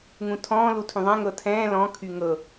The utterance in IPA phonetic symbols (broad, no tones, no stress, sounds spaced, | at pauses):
ŋ ũ tʰ ɔ̃ː l u tʰ ũ ðˤ ɛ̃ ŋ ɤ tʰ ɛ̃ː l ɔ̃ kʰ y ŋ ɤ